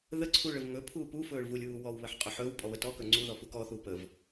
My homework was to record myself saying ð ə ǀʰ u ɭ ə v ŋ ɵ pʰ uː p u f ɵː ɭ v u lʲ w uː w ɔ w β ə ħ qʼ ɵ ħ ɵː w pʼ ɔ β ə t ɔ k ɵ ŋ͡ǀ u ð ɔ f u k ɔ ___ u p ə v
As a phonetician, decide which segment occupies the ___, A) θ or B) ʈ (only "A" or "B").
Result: A